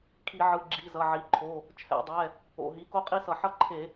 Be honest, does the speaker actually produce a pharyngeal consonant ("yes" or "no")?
yes